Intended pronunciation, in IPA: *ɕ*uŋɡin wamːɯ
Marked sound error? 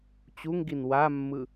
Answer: yes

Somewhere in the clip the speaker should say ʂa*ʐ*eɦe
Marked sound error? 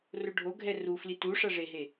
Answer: no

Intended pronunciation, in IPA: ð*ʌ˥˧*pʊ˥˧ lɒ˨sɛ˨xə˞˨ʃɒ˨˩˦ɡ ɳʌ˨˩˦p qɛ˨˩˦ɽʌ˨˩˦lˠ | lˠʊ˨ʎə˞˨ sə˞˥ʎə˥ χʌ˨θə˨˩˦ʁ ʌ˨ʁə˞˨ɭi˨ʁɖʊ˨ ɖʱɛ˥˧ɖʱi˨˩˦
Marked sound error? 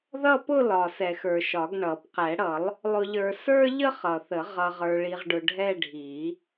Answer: no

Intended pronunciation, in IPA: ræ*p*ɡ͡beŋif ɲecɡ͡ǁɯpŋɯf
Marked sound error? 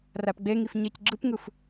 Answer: no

